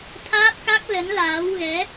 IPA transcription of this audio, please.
t̪ʰ aː˦˥ p̚ k a˦˥ k̚ l ə˨˦ n l aː˨˦ w ɣ ɛ˨˦

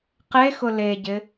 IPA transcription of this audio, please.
q e x ʊ l e ɟ ɪ

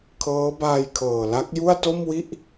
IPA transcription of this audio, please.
kʰ ɤː˦˥ b aː˧ j kʰ ɤː˨˩ l a˦˥ k̚ j u˥˩ a̯ t o˥˩ m w i˥˩ ʔ

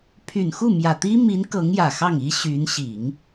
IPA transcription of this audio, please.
pʰ y˨˩ n x u˥˩ m j ä˨˩ t̪ i˥ m i˧˥ n k ɤ˧˥ ŋ j ä˨˩ x ɑ˥˩ ŋ i˥ ɕ y˧˥ n ɕ i˨˩˦ ŋ

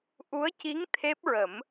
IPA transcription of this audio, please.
ʔ u˧˥ ə̯ c i˧˥ ŋ t̪ʰ e˦˥ p̚ ɹ ə˨˩˦ m

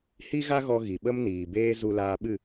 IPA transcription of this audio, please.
h i˦ ɣ a˦ ɣ ɔ˧ ɣ i˨ ɓ ə˦ m n iː˨ b eː˦ z u˧ l aː˧ ɓ ɨ˦˨

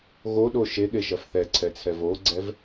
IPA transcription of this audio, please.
ɣ o ɗ o ʃ e ɠ e ʃ ɐ f θ ɛ ǀʰ ɛ t͡sʰ ɛ v o ɡ͡ǀ ɛ v

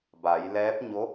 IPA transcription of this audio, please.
b a˩˧ j l ɛː˧˥ p̚ ɲ o˧˥

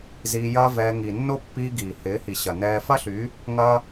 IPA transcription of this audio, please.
z iː˧ j ɐː˦ v ɛː˧ ŋ i˨ nː o˦ pː iː˧ ɡ iː˨ h ɪː˨˦ h i˨ ɕ ɐ˨ n ɛː˧ f ɐ˦ ɬ y˨˦ | ŋ ɐ˦

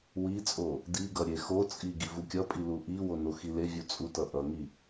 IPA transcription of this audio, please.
w i t͡sʼ o | d i ɡ ʌ ɾʲ e x o t͡sʼ i ɡ i v u kʲ ʌ pʼ i l u ʔ i w o n o x i l e vʲ u t͡sʼ u t ʌ ʔ ʌ ŋ i

